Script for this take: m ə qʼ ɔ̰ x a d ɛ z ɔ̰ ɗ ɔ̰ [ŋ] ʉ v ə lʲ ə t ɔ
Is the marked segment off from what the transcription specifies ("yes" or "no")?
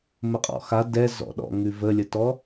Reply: no